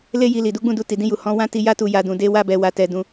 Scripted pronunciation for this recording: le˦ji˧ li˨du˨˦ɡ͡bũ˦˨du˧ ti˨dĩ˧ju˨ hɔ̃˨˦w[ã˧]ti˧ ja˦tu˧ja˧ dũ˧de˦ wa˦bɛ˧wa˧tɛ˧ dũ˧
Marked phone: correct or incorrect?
incorrect